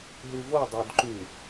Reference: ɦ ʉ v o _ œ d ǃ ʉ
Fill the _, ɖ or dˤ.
dˤ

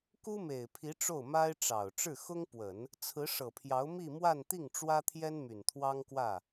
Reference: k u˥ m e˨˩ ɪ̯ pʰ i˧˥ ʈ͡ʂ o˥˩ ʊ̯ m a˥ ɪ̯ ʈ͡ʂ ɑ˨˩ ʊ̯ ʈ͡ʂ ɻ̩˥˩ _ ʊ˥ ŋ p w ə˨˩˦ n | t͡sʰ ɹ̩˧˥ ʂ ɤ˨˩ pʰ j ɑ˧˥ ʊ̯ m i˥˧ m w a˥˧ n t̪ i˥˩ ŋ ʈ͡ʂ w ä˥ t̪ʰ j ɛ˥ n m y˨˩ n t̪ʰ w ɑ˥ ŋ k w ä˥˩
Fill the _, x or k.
x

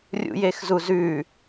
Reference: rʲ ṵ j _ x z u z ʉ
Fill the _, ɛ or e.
e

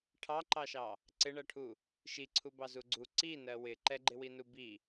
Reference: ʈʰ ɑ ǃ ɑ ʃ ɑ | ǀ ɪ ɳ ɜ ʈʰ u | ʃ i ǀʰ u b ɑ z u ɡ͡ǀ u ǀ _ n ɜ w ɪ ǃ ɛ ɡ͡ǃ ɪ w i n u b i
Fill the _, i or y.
i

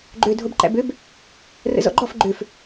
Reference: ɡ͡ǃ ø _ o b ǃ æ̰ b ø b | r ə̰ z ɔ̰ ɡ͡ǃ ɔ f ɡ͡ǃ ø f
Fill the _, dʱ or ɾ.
dʱ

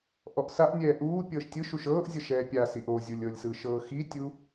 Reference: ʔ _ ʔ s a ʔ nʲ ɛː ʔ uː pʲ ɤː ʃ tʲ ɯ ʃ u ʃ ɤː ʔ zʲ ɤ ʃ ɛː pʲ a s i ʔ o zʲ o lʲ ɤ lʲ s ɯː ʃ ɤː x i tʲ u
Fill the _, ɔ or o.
ɔ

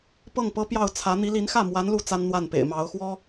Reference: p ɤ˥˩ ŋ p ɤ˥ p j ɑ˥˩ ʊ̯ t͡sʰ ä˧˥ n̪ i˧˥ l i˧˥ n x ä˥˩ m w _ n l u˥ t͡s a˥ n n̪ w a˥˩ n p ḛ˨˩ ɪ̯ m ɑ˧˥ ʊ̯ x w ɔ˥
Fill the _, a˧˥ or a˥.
a˧˥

